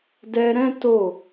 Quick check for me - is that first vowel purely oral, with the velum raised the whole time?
yes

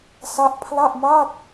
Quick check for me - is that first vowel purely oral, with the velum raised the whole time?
yes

